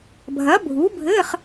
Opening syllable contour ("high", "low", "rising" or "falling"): rising